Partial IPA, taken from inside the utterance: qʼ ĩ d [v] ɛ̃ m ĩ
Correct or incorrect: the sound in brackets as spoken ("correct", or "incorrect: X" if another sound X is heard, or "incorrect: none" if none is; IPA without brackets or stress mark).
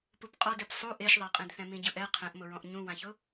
incorrect: θ